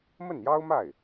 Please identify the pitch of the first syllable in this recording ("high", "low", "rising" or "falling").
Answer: falling